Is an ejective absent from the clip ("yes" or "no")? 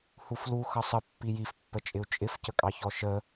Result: no